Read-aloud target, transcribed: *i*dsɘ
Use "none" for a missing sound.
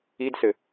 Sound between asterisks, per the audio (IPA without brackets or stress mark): i